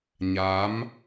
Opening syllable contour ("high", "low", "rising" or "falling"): rising